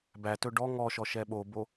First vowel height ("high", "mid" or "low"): low